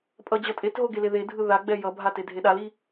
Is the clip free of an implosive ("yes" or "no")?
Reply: no